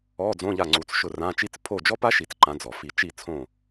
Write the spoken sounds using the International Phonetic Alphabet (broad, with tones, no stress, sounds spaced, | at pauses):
ɔ˧˥˧ d͡z õ˧˥˧ ʎ a˦˨ ŋ͡ǀ u˨˦ t͡s ʃ ʊ˦˨ r ã˧˥˧ t͡ʃ i˦˥ t͡s pʰ o˦˨ d͡ʒ ɔ˦˥ p a˦˥ ʃ i˨˩˦ t͡s ǃ ã˨˦ d͡z ɔ˩ f i˨˩˦ t͡ʃ i˦˨ t͡sʰ õ˦˨